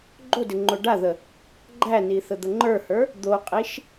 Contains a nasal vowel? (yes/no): no